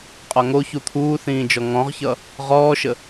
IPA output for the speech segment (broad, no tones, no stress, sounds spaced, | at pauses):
qʼ ɒ ŋ o ç u t̪ʰ uː θ ĩː d͡ʒ ɔ ŋ ɔ̃ ʁ ç ʌ | ʁ ɔː ʃ ə